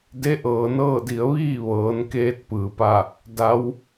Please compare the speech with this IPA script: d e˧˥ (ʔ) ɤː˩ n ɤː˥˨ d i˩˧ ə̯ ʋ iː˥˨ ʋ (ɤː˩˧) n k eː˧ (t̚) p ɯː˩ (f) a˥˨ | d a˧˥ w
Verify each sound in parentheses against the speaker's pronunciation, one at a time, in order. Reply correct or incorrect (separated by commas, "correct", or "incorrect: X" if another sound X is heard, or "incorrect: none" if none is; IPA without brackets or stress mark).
correct, correct, correct, incorrect: p